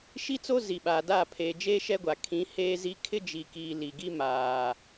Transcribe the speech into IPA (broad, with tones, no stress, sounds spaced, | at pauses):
ʃ i˦ t͡s o˦ z i˨ ɓ aː˨ d aː˦˨ pʰ eː˨ d͡ʒ eː˦ ʃ ɛ˦ ɡʷ a˨ kʰ ĩ˨˦ h eː˦ z i˦ kʰ ɪ˦ d͡ʒ i˨ k iː˨ l i˨ ɡ i˦ m aː˨